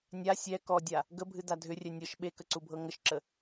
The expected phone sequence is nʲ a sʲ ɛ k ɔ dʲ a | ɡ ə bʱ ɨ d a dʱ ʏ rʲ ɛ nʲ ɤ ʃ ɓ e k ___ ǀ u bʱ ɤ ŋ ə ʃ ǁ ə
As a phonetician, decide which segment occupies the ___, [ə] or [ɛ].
ə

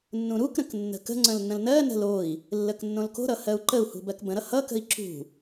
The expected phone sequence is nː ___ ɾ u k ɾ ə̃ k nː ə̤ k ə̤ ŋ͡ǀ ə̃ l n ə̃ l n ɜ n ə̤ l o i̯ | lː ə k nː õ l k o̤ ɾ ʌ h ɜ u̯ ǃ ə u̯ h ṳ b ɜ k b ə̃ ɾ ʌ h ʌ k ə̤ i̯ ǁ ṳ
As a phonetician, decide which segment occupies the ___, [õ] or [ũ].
ũ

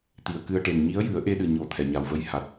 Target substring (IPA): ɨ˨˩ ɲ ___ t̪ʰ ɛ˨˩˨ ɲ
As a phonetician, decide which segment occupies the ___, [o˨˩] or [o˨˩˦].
o˨˩˦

